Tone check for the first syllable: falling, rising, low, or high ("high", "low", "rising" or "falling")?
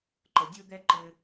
rising